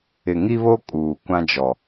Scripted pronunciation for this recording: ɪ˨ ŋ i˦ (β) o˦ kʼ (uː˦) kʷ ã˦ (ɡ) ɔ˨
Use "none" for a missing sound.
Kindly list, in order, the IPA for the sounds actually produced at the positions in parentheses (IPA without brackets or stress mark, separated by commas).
β, uː˨, d͡ʒ